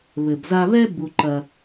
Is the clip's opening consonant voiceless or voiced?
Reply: voiced